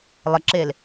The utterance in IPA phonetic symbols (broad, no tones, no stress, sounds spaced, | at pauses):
lˠ ə ǁ e l